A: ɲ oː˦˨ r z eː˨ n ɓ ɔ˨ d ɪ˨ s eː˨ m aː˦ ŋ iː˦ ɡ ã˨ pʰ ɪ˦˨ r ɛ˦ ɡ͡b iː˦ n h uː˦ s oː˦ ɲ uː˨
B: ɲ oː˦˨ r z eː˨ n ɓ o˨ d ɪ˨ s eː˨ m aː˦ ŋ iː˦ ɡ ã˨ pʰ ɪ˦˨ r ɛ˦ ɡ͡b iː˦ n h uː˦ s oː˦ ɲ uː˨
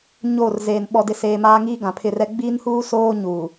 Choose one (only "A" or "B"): A